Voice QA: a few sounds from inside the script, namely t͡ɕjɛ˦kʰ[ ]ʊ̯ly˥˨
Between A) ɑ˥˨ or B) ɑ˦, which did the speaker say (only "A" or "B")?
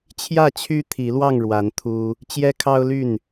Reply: B